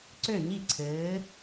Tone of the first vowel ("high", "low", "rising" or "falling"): falling